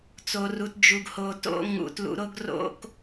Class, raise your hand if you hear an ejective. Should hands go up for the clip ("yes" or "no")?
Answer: no